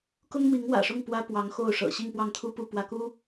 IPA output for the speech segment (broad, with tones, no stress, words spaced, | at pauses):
kʊ˥ŋmi˧˥ŋwä̰˨˩ʂʊ˥˩ŋ pwä˥pwɑ˧˥ŋ xo˥˩ʊ̯ʂɤ̰˨˩ ɕi˥˧ŋpwɑ˥˩ŋt̪ʰu˥ pu˥˩pwä˧˥ku˥